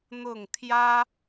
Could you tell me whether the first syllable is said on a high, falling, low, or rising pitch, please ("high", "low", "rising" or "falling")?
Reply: falling